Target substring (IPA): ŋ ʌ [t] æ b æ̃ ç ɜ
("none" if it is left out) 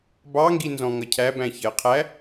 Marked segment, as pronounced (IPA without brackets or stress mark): cʰ